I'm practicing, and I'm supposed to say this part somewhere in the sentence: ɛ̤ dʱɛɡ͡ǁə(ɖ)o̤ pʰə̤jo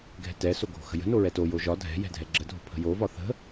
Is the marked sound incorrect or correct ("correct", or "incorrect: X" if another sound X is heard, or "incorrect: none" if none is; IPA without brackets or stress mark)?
incorrect: dʱ